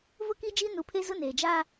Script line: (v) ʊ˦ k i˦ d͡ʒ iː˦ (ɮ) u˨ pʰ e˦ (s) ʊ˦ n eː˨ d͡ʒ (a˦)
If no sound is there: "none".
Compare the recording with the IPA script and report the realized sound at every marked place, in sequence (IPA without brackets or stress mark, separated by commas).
v, n, z, aː˦